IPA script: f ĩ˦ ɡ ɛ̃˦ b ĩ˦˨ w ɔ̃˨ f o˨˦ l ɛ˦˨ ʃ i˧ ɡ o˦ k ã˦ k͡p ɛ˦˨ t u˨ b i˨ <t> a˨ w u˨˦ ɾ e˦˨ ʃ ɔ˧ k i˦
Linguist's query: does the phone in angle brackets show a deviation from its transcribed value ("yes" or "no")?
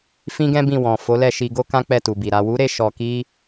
yes